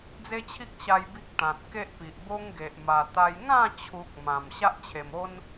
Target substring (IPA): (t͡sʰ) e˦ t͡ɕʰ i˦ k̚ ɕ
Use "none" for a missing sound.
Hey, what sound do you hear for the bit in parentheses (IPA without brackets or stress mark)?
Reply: d͡z